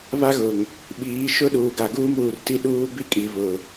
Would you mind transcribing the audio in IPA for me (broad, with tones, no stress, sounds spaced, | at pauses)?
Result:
β a˦ ɣ ʊ˨ ŋ | ɓ iː˨˦ ʃ ʊ˦ ɗ uː˨ ɡ a˨ ɡ uː˦ m uː˨ r t i˦ ɗ uː˦ b i˦ kʼ i˨ β ʊ˨